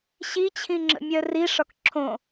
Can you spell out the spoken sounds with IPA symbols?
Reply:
ɕ i t͡ɕʰ ĩ ŋ͡ǁ ə̰ mʲ œ r i ʂ ɒ k ǁʰ õ

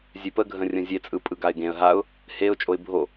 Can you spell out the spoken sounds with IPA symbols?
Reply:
zʲ e p ə ɡʱ ə̃ rʲ ə̃ zʲ e t͡sʼ ɯ pʼ ɯ ɡ a ɪ̯ ɡ ẽ ə̯ ɦ a ʊ̯ | h e ʊ̯ t͡ʃʼ o ɪ̯ bʱ o

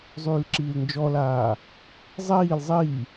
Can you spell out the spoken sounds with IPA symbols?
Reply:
zˤ yː l ǁ iː l n d͡ʒ ɔ l aː | zˤ iː l zˤ i

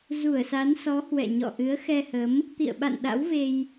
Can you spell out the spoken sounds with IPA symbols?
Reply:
z u˧˩ ə̯ s a˨˦ n s ɔ˨˦ h w ɛ̰˧˨ ɲ ɔ̰˧˨ ʔ ɨ˨˦ ə̯ x ɛ˧ h ə˨˦ m | t̪ ḭ˧˨ ə̯ ɓ a̰˧˨ n ɗ a̰˧˥ w v e˧ j

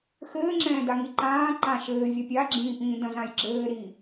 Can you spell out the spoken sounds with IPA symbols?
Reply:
x ɘː ŋ͡ǁ ɛ̃ː d a ŋ i ǃ ãː ǃ ã ʃ ɘː vʲ ɐ pʲ a ɡ͡ǁ ĩː p ĩː d ɐ̃ z ã j ɡ͡ǁ ɘː ɾ i

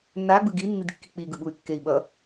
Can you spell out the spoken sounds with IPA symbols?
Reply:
nː a ɡ͡b ɯ ɡ i nː i d kː i k͡p i ɡ ɯ ɓ u y̯ kː e i̯ ɓ ʌ

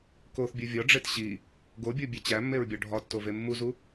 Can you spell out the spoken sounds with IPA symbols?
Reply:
k o θ bʲ u vʲ ɒ ɖ͡ʐ e t ɕ i | ɡ o bʲ o bʲ e t͡ɕ æ mː e ɹ bʲ ɒ ɖʱ ɒ tː o v e mː u z u

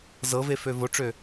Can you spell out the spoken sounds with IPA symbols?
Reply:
z ɤ v e f ø v o ʈ͡ʂ ø

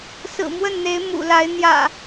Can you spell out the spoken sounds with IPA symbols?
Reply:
s ɹ̩˨˩ m w ə˥˨ n n̪ e˨˦ ɪ̯ m ṵ˨˩ l a˨˦ ɪ̯ n̪ j ä̰˨˩

